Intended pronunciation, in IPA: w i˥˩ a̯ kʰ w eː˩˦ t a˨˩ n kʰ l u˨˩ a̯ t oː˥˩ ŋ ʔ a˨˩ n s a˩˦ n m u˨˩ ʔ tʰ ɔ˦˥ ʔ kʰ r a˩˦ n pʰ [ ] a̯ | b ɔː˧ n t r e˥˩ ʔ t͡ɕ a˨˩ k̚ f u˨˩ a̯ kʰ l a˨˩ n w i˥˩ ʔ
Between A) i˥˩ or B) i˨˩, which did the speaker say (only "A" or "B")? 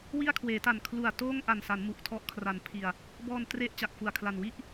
B